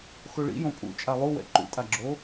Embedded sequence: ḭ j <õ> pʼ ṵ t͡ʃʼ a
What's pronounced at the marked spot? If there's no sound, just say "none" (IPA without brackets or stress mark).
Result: õ